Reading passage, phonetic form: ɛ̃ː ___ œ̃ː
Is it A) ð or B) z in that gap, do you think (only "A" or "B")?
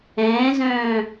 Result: B